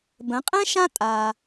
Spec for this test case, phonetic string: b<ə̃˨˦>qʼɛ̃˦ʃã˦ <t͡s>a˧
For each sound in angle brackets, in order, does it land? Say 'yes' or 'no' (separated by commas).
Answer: yes, no